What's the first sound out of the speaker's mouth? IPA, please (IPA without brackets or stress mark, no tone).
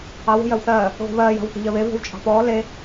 ɑ